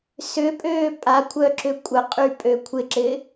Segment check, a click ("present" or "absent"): present